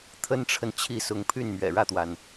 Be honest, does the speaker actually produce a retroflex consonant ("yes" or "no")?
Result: yes